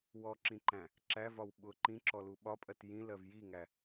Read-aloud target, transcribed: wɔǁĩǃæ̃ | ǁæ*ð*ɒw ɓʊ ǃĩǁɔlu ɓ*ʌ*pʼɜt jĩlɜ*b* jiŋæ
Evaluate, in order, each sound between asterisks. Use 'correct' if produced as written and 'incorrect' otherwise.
incorrect: v, incorrect: ɒ, incorrect: v

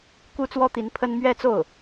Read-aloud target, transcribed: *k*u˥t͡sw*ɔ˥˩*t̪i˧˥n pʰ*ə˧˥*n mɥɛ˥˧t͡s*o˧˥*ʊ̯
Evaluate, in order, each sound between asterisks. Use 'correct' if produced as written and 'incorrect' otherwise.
correct, incorrect: ɔ˥, incorrect: ə˥, incorrect: o˥˩

